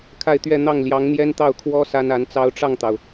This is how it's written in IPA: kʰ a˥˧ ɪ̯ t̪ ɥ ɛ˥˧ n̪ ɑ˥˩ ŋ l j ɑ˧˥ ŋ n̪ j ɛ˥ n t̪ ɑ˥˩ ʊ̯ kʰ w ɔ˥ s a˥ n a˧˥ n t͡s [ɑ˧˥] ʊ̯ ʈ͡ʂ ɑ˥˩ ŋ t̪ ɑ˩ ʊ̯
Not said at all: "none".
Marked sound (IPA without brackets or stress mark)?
ɑ˥